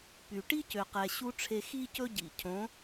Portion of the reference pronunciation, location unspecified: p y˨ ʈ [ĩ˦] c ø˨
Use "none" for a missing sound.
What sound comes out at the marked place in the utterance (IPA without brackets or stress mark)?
i˦